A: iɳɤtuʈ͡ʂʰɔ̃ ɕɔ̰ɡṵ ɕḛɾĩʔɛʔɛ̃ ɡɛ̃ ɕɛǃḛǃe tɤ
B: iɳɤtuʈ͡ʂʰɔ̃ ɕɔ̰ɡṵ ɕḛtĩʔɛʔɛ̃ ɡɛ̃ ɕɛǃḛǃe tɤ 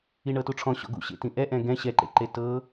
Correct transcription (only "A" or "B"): B